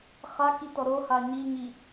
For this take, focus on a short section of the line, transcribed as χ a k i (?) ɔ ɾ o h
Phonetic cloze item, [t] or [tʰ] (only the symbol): t